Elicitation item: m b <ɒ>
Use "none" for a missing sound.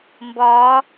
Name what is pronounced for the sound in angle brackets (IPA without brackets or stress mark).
ɒː